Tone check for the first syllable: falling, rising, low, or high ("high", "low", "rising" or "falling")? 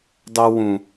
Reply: high